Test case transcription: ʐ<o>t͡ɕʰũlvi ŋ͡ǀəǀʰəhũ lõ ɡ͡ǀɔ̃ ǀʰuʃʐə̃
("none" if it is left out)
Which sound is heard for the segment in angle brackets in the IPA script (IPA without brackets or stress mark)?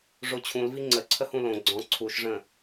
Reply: o